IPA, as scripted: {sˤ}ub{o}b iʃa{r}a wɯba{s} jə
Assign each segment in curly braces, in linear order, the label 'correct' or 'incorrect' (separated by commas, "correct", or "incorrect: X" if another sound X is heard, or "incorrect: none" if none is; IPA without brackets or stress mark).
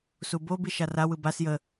incorrect: s, correct, correct, correct